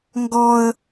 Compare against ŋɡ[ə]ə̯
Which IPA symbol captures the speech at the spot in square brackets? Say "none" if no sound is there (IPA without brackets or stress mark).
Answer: ɔ